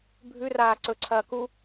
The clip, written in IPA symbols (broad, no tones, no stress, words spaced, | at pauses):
bʱʉraː ǀɵǀʰɐː ku